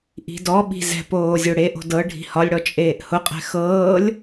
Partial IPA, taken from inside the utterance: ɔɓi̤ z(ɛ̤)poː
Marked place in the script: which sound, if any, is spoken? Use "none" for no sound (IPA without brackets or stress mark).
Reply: ɛ̤